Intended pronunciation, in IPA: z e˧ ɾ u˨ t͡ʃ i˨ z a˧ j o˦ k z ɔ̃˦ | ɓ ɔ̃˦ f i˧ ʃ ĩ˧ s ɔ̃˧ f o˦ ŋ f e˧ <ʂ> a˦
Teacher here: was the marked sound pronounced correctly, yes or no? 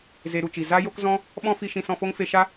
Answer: no